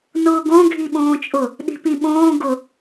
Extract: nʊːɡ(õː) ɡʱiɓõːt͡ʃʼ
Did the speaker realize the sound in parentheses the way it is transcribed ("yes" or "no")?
no